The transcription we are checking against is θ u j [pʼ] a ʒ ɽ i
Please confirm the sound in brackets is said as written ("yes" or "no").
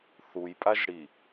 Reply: yes